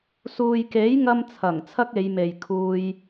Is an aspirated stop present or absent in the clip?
present